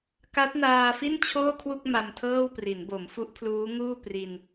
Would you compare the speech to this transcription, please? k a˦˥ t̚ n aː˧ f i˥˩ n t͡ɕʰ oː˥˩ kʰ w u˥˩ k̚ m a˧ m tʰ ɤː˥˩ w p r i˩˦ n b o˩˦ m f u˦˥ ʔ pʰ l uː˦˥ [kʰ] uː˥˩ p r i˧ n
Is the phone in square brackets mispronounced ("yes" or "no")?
yes